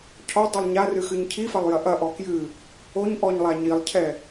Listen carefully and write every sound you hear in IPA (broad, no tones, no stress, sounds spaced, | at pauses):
cʰ ɔ dˤ i lˠ ɲ a r ɨ x ɨ ɲ cʰ i f ɐ lˠ j ɐ ʔ ɐ ʔ ɔ k j ɨ | o ɲ ʔ ɔ ɲ lˠ a ɲ i lˠ cʰ ɛ